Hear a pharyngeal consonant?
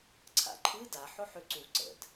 yes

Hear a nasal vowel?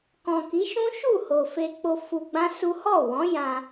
yes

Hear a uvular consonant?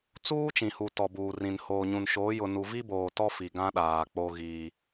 no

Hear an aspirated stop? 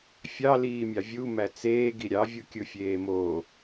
no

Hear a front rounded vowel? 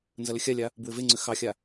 yes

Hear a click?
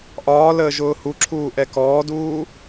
yes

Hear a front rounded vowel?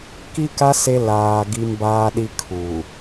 no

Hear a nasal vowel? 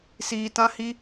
yes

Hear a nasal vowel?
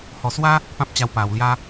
yes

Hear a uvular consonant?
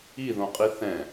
yes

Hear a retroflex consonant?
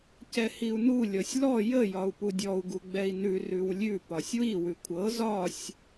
no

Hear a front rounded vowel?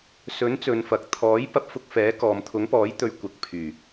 yes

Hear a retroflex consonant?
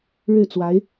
yes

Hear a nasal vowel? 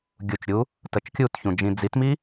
yes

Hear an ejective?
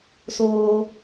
no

